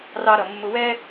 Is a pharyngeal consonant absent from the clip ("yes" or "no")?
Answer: yes